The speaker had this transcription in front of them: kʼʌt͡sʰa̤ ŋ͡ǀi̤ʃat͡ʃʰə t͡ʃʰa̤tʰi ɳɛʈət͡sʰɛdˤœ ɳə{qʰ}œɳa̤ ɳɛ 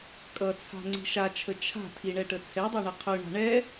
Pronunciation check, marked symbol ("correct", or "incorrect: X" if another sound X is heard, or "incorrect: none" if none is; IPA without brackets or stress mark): correct